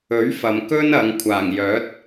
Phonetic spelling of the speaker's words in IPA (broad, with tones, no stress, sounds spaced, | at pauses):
ɵ˨˥ ɥ f ɐ˨ m k ɵ˥ n ɐ˨˧ ŋ kʷʰ aː˨˩ ŋ j œː˨˥ t̚